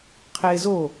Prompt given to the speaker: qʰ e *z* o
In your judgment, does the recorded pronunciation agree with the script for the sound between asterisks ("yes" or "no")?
yes